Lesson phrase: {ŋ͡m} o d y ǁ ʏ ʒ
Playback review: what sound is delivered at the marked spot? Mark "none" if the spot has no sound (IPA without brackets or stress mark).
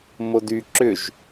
m